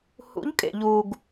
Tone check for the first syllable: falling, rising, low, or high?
rising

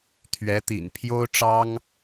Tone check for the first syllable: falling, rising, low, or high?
rising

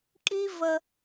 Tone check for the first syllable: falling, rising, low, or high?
high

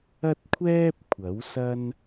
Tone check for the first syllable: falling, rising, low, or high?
high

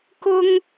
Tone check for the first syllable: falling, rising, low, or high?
high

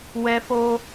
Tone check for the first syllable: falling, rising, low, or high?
high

